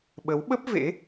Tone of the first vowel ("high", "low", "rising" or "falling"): rising